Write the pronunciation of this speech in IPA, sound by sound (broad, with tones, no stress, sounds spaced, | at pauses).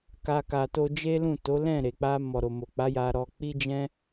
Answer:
k a˧ k a˨ t o˧ d͡ʒ e˦ l ũ˦˨ t o˨˦ l ɛ̃˦˨ ɾ e˨ k͡p a˧ m ɔ˨ ɾ o˨ m o˨ k͡p a˨˦ j a˧ ɾ ɔ˧ k͡p i˦ d͡ʒ ɛ̃˦